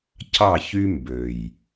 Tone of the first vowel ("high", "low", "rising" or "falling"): falling